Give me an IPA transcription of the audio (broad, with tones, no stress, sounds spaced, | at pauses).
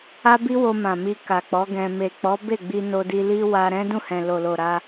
a˦ b i˦ w o˧ m ã˨ m i˧ k a˨ k͡p ɔ˨˦ ɡ ɛ̃˧ m e˨ k͡p ɔ˨˦ b e˦˨ ɡ͡b i˧ n o˧ d i˧ l i˦ w a˧ ɾ ɛ̃˦ d ũ˦˨ h ɛ̃˨ l o˨ l o˨ ɾ a˧